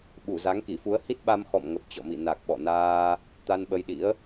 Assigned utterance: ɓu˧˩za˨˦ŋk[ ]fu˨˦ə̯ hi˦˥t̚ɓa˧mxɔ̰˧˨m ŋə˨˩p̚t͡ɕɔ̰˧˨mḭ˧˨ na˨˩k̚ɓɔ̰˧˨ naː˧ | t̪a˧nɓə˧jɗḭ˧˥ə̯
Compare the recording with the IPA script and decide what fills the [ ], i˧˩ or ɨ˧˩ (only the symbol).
i˧˩